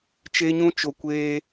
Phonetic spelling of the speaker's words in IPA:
t͡ʃe˦ɲũ˦t͡ʃo˧ kʷeː˧

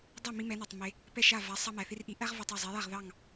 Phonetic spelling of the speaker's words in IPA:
dˤæ˥˩mi˧ mɛ˩˥nɑ˩tˤ me˩ | pɛ˥˩ʃa˥˩va˩˥ sˤɑ˧ mæ˩θi˥r ʔi˩˥ʔæ˥ʁva˧tˤ æ˥˩zˤe˩˥ja˥˩ʁ ðɑ˥˩ŋ

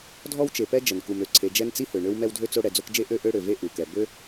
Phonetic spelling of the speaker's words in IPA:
dʱɔ˥wt͡ʃe˨pɛ˥ d͡ʒə˩nku˨mø˩ǀʰe˨ d͡ʒɛ˦nt͡si˥hø˩ɳø˦w mɛ˦wdʱø˥t͡so˦ ɽɛ˨d͡zo˦kd͡ʒe˥ ʔø˦ ʔø˦ɽø˩ve˦ ʔu˩kɛ˩ bø˥

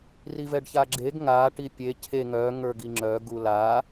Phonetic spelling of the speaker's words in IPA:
rivɛɖçaɡ͡ǁeɡ ŋa ʈipʲe cʰe ŋœ ŋə˞ɡiŋ͡ǁœ ɡula

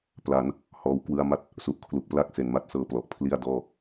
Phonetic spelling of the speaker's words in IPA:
pla˩˦n | hɔː˧w kwɯ˧a̯ma˥˩t̚ | su˨˩ʔkʰlu˨˩k̚pla˥˩k̚ se˩˦nma˥˩t̚sɤː˦˥ plɔ˨˩ʔ pʰli˥˩a̯dɔː˥˩

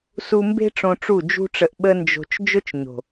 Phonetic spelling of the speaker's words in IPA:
su˧mbe̤˦ ʈ͡ʂõ˧ʈ͡ʂu˦˨d͡ʒṳ˦ʈ͡ʂə˧ʔ ɓə˦nd͡ʒo̤˧t͡ʃ d͡ʒʊ˦t͡ʃɲo̤˨

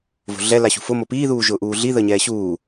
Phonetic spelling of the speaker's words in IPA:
vo̤ɮɛ laɕṳfʊ mopiː ðuːʒʊːʔuːɮi ðəɲɛːɕuː

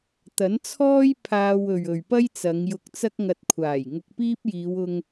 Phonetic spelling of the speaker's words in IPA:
t̪ɐ˨˥nt͡sʰɔː˥j pʰaː˧wɵ˨ɥ ɵ˨ɥpɐ˥jt͡sɐ˨˧ŋjʊ˧k̚ t͡sɐ˥k̚ŋɐ˧t̚kʷʰaː˨˩j ŋʊ˧k̚piː˥p̚jiː˨˧wʊ˧ŋ

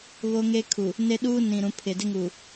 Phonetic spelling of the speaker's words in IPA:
βo˦ŋe˦kʰu˨ | ne˦ɗuː˦ nĩ˨ɾũ˨˦ pʰɪ˨dɪ˦ŋu˨

